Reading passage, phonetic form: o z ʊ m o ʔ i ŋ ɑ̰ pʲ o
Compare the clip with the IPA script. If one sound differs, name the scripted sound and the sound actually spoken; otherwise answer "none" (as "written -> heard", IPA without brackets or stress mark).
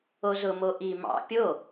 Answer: ŋ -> m